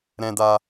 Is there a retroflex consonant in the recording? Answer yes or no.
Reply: no